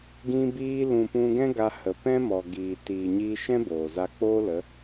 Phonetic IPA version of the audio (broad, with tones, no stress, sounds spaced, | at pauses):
ɡ ĩ˧ b iː˧ l ũ˨ p ũ˧ ɡ ɛ̃˦ ɡ a˧ h ə˨ p ɛ̃˦ m ɔ˨ ɡ iː˨ t iː˨ ɲ iː˧ ʃ ɛ̃˦ b oː˨ z a˧ k͡p oː˦ l ə˨˦